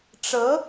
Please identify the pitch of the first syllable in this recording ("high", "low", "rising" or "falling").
rising